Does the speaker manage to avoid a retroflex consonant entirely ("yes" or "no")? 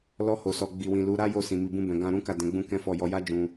yes